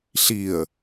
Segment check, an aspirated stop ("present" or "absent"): absent